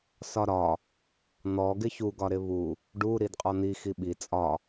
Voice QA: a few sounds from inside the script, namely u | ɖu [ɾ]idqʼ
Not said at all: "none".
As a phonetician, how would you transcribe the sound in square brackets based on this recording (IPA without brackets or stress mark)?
ɾ